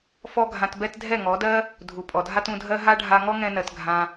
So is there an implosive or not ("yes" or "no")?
no